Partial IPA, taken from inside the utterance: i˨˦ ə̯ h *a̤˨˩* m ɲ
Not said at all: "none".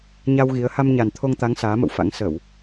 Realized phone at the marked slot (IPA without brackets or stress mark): a˧